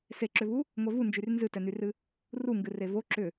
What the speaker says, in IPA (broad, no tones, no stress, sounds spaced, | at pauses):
s e ǁ ʏ v u | ŋʷ ɛ v u n d͡ʒ y r n z ɨ t ɛ n y r ɨ | r u ŋ ɡ ɨ r e v o ǁ ʏ